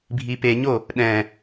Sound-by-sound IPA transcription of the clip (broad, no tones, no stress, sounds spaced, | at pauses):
bʱ i p e ɲ o | ɗ ɛ̃